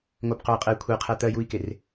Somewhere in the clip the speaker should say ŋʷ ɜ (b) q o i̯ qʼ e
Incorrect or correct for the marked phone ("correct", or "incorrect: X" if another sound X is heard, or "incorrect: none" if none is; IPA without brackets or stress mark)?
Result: correct